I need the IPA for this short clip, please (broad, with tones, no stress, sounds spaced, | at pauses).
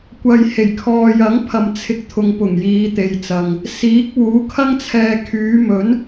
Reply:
kʷ ɐ˨ j h e˨˩ j kʰ ɔː˨ j ɐ˨˥ ŋ pʰ ɐ˨ m t͡sʰ ɪ˧ k̚ t̪ʰ ʊ˨ ŋ p ʊ˨˩ ŋ j iː˨˧ t̪ e˨˧ j t͡s ɐ˨ ŋ | s iː˨˥ k̚ w uː˨˥ kʰ ɐ˥ ŋ t͡sʰ ɛː˧ kʰ yː˨˧ m ɵ˨˥ n